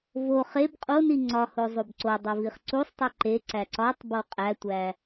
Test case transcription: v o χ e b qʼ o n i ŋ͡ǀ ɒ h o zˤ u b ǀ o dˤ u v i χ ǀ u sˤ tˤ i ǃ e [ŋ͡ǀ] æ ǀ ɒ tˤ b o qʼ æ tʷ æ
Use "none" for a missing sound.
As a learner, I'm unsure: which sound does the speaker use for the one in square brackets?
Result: ǀ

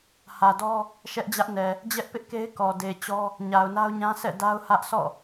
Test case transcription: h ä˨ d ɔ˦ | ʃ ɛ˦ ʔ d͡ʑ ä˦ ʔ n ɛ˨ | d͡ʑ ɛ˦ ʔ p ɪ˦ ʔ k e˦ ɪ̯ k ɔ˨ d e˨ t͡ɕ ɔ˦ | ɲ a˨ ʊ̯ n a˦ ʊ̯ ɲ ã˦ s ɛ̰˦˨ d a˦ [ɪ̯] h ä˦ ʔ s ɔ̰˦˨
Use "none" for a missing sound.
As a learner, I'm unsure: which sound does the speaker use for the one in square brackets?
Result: ʊ̯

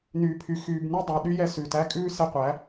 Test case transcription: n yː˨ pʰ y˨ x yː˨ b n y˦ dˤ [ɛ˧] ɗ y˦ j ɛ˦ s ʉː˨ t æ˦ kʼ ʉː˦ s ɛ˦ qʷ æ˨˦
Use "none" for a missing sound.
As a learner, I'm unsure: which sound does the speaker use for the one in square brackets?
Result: æ˧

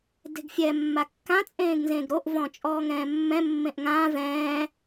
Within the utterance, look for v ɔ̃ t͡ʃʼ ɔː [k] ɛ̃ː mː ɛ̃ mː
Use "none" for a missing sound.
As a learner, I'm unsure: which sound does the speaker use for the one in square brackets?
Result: ŋ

